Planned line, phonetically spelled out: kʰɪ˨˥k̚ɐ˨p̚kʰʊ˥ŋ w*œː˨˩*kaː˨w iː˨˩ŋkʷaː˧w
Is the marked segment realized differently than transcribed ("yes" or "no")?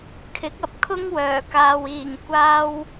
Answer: no